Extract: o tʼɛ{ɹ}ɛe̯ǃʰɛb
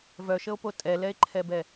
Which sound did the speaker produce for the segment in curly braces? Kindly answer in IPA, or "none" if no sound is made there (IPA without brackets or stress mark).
l